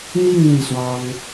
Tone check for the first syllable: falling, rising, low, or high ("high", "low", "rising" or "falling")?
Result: falling